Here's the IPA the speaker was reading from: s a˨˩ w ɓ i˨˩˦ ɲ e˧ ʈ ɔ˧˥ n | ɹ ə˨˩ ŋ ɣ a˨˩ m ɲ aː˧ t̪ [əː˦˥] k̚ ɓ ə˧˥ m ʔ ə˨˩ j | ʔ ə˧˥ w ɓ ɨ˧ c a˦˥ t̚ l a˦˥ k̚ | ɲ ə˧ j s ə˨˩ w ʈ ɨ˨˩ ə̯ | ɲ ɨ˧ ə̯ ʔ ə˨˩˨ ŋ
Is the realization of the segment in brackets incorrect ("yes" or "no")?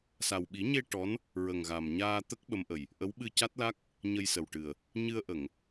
yes